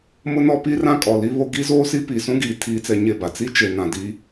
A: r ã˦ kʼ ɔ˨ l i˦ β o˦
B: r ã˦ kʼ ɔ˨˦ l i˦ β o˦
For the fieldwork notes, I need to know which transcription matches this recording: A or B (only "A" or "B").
A